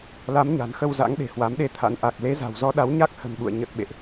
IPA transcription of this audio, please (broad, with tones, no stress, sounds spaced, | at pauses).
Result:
l a˨˦ m ɲ a̤˨˩ n x ə˧ w z a̰˧˥ ŋ ɗ e̤˨˩ h w a˨˦ m ɗ e˧ t̪ʰ a̰˧˥ n ʔ a˨˩ k̚ l e˨˦ z a̤˨˩ w z ɔ˧ ɗ a˨˦ w ɲ a˦˥ k̚ h ə̤˨˩ n ɓ ṵ˧˨ ə̯ ɲ ə˨˩ t̚ ɓ ḛ˧˨ ʔ